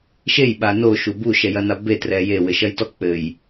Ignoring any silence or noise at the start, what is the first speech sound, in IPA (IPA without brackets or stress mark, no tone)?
ʃ